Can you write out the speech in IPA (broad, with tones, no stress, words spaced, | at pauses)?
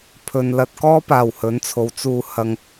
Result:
pʰɵ˨nlɐ˧t̚ kɔː˥paː˨˩w hɵ˨˥nt͡sʰo˨˥w t͡suː˧ hɐ˧ŋ